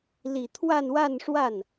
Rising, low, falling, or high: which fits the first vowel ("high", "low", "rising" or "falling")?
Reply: low